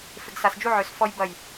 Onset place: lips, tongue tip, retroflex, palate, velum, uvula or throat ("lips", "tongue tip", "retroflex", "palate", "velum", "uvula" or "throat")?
lips